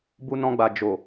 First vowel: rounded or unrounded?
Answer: rounded